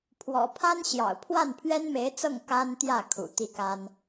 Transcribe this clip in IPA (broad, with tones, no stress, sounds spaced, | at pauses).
pʰ w ɔ̰˨˩ pʰ a˥ n ɕ j ɑ̰˨˩ ʊ̯ pʰ w a˥˩ n pʰ ɥ ɛ˥ n m e˧˥ ɪ̯ t͡s ɤ˥˩ ŋ k a˥ n t̪ j ä˥˩ kʰ ṵ˨˩ t̪ i˥˩ k a˥ n